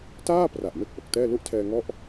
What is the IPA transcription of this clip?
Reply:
taː˥˩pra˨˩ʔ me˥˩k̚ʔo˨˩k̚tɛː˥˩ lu˦˥ʔtʰɛː˧ŋɔ˦˥ʔ

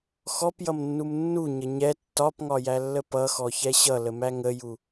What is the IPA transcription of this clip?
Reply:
xɔpjʌmnːum nːuɲə ɲɛ tːɒpŋɒjælːə pʌxɔçɛ ɕʌləmæ ŋəju

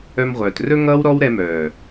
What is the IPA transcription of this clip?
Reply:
œ˧mʁʷœː˨trɵ˦ ŋʌː˦wɾɔ˦wɾɛ˧mœː˨

